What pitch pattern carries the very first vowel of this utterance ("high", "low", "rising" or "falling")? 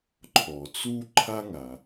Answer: low